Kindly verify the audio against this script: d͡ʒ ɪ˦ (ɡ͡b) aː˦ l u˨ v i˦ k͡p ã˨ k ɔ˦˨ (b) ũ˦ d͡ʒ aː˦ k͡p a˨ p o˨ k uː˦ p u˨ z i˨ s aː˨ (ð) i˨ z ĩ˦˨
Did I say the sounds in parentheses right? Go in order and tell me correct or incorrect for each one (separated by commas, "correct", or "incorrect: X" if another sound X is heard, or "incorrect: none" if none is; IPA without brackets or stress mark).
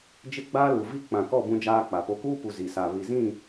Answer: correct, correct, incorrect: β